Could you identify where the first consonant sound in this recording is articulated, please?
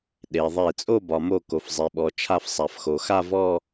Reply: alveolar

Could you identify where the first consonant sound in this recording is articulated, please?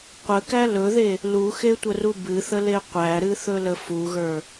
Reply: uvular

